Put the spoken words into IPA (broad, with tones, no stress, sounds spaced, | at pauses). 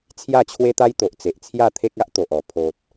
t͡sʰ j a˥˧ t͡ɕʰ w e˦ t̪ a˦ j t̪ o˨ ʔ t͡s e˨ ʔ t͡sʰ j a˥˧ t̪ʰ e˦ k̚ a˦ ʔ t̪ o˨ ʔ ɔ˨˩ pʰ o˨ t̚